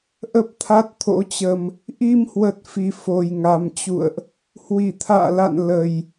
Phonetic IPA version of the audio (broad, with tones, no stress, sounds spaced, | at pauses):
ʔ ə˦˥ p̚ t̪ʰ a˦˥ t̚ t̪ʰ o̰˧˥ t͡ɕ ə˧ m | ʔ i˧ m h w ə˨˩ t̚ f i˨˩ f o˨˩ j ŋ a˨˩ m t͡ɕ ṵ˧˨ ə̯ ʔ | h w i˧˩ t̪ʰ a̰ː˧˨ l a̰˧˨ n l ə˨˩ j